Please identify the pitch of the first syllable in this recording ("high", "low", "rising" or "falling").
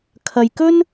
low